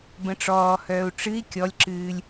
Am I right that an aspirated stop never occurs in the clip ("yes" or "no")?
yes